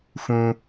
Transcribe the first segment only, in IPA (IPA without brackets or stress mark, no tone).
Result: f